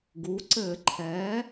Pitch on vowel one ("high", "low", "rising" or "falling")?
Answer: rising